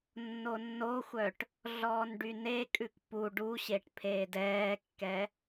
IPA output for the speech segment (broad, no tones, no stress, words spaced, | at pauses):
nːonːoxʷœʈ | ɮɔːnɖynekʼʉk pu ɖuɕeʈ pʰeːdɛːkːɛ